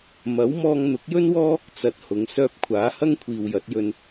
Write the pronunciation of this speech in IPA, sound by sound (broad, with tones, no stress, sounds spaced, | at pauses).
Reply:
m ɐ˨˥ w m ɔː˧ ŋ n̪ ʊ˨˥ k̚ j ɵ˥ n w ɔː˥ | t͡s ɐ˨ t̚ h ʊ˨˧ ŋ s œː˧ p̚ kʷʰ aː˨˥ h ɐ˥ ŋ kʷʰ iː˨ w j ɐ˨˥ t̚ j ɵ˧ n